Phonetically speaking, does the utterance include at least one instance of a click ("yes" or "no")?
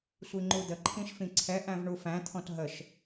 yes